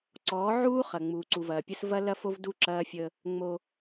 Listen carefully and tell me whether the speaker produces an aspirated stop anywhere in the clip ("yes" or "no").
no